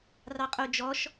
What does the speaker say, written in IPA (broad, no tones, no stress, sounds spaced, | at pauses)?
r ɑ qʼ o d͡ʒ ɔ ʃ